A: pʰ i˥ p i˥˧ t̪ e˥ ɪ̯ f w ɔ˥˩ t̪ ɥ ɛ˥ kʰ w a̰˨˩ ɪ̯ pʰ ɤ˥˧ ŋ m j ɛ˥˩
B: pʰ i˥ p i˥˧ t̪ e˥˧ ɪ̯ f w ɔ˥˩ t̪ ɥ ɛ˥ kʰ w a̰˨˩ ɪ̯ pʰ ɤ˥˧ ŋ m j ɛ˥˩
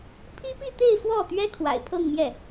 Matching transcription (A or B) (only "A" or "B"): B